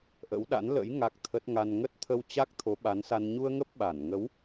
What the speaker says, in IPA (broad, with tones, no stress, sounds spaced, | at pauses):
ʔ ə̰˧˥ w ɗ a̰˧˥ n l ə̰˧˥ j ŋ a˦˥ k̚ t̪ʰ ə˦˥ t̚ ŋ a˧ n ŋ ə˦˥ t̚ t̪ʰ ə˧ w t͡ɕ a˦˥ k̚ t̪ʰ o˨˦ ɓ a˨˦ n s a˧ n ɲ u˧ ə̯ ŋ ə˦˥ p̚ ɓ a˧˩ n ŋ ə˨˦ w